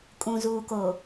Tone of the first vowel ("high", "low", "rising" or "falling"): low